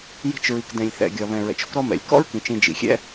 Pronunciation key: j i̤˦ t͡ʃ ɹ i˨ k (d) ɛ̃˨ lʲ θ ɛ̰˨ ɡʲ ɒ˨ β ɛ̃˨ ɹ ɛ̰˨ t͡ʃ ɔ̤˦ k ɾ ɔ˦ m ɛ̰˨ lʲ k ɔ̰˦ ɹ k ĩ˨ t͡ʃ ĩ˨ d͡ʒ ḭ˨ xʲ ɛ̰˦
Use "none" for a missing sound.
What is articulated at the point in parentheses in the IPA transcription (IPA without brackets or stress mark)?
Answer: d